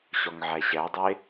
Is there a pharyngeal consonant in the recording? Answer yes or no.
yes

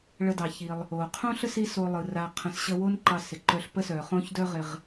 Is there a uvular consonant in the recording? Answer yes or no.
yes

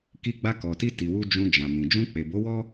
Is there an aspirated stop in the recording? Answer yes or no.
no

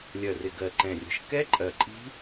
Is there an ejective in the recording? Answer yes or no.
yes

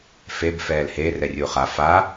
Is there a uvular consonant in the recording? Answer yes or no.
yes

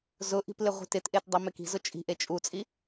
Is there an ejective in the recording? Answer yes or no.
yes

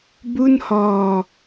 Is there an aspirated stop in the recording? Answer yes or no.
no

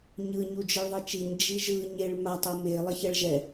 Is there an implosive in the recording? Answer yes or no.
no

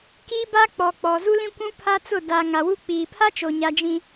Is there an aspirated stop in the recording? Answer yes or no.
yes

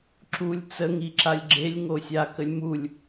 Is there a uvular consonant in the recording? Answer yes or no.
no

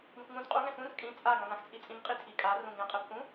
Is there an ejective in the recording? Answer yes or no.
yes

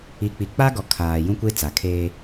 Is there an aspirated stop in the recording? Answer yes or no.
yes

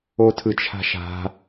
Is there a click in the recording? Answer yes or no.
no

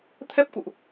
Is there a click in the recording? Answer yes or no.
no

